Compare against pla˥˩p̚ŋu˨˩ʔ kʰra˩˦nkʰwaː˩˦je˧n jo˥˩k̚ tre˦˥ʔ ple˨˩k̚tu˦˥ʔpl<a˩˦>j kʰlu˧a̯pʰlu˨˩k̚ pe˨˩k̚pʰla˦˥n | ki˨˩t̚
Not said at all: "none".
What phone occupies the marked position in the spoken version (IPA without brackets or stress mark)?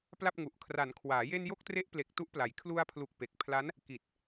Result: a˩˦